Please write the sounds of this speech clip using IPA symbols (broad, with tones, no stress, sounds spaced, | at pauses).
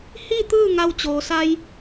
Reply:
h i˥˨ t̪ ɯː˥˨ ŋ a˧ w t͡ɕ oː˩ s a˧ j